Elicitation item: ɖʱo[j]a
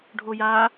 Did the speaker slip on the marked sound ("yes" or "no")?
no